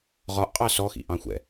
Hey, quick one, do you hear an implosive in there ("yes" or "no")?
no